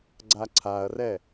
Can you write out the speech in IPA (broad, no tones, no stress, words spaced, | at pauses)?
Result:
ɡ͡ǀaǀʰaɐ̯rɛ